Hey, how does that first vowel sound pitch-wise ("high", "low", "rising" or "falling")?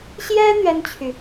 high